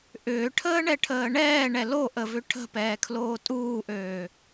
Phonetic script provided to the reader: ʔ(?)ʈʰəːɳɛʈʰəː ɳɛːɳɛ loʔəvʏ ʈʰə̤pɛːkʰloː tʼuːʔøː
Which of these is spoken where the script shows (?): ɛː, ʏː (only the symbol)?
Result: ʏː